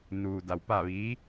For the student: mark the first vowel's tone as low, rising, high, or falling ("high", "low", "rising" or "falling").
low